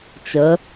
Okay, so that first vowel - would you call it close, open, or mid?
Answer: mid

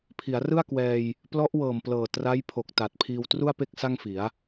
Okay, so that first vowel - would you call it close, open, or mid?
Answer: close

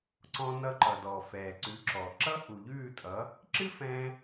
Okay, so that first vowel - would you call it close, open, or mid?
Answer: mid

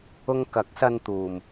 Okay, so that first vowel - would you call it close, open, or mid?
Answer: close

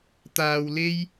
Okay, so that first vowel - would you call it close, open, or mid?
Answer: open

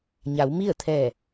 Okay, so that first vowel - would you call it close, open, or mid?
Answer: open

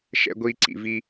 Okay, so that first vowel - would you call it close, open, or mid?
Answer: mid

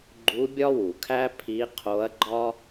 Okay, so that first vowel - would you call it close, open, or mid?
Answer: close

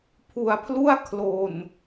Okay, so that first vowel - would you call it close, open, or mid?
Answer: close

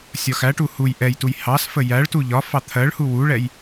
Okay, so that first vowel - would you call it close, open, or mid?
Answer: open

